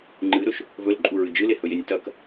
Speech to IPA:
ŋ͡ǃ ɨ ɾ ɵ ʃ | v ɵ l ǃʼ u ɹ ɨ d͡ʒ ɨ l e h ɵ j e nʲ t ɐ k

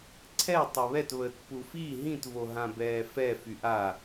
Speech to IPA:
ǀʰ ɛ tˤ o β ɛ t β əː t p u f i ɦ ĩ t v o ɦ ã b ɛː f ɛ f y ʔ a

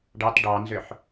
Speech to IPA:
ɖ ɑ t ɖ ɑ n z ʏ ħ

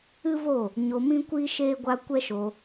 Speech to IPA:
ɨ˦ v o˦˨ | ɲ o˧ m ĩ˦ kʷ iː˦ ʃ eː˦ ɡʷ a˧ kʷ ɛ˦ ʃ o˧

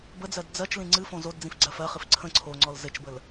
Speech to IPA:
b ə d͡z ɜ d d͡z ɜ t͡ʃ l ĩ ŋ͡ǀ ɨ f õ z o d d͡z ĩ f ɡ͡ǀ ɜ f ɜ χ ɨ f ǀʰ ə̃ ǀʰ o ŋ͡ǀ ɔ l z ɘ t͡ʃ b ə l

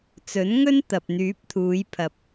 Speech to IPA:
t͡s ɵ˨˥ n ŋ ɵ˥ n t̪ ɐ˨ p̚ n̪ yː˨˥ p̚ t̪ʰ uː˨˧ j pʰ ɐ˨ p̚

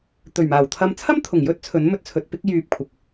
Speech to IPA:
t̪ ɵ˨˩ ɥ m aː˨˩ w t̪ʰ ɐ˧ m t͡sʰ ɐ˥ m t̪ʰ ʊ˨˩ ŋ j ɵ˥ t̚ t͡sʰ ɵ˨˥ n m ɵ˧ t̚ t͡sʰ ɵ˨ t̚ p ɪ˥ k̚ j yː˧ p̚ kʷʰ ɐ˨˥ k̚

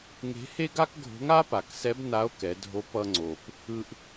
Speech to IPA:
ŋ e̤˧˥ h e˥ ɡ a˥ k ɡʱ o̤˧˥ ŋ a˥ p a˩ k s ɛ˧˥ b n a˧˥ o̯ k ɛ˩˧ dʱ o˧˥ p ʌ˧ ŋ͡ǀ o˩ p | ɯ˧ ʔ

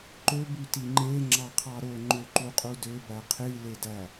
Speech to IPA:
ǃ ø b y t i ŋ͡ǃ e ŋ͡ǁ ɑ qʰ ɑ ɾ o ŋ͡ǃ ø ǃ u qʼ u d ø b æ qʰ i l e d æ

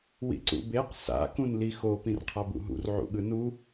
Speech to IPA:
w ḭ ǀ ṵ b e q s a̰ k ũ n l i x o p ĩ r qʰ a b ṵ ɦ ṵ r ʕ ṵ ɠ ɯ n u

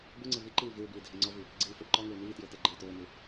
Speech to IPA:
b u ŋ͡ǀ ɪ v i ǃ iː v ɪː b iː dʱ e ŋ͡ǀ ɔ v i | ɡ͡ǀ iː f o ɖ ǃ ɔ ŋ ɪː n̪ iː t j ɪː t e ɡ͡ǃ ɪː t ʊː n̪ u

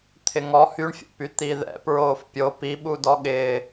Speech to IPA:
t̪ʰ ɪ ŋ ɔ h y ɳ fʲ o̰ p y t̪ i ð ɛ̰ p ɹ oː f pʲ o p i ɓ u d ɔ ɠ ɪː

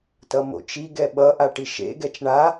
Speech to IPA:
t ʌ m o̰ t͡ʃ i ɡ ɛ ɓ ʌ ʔ a ʈ i ʃ ḛ ɡ ɛ t͡ʃ ɳ a

